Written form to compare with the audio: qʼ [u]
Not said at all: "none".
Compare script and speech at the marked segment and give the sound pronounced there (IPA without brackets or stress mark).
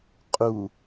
u